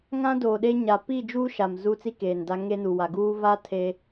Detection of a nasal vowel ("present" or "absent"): present